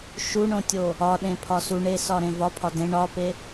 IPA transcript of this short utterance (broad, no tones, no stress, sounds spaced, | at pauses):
ʃ u ɳ õ tʲ o | ɒ ɗ ẽ pʰ ɒ s u ɳ e s ɒ ɾ ẽ v ɒ pʰ ɒ d ẽ ɳ ɒ p e